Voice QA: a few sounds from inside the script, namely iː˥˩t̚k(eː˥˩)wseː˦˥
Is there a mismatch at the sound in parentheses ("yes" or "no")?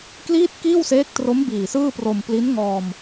yes